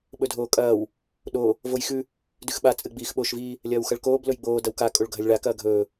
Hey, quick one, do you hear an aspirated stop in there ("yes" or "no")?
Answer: no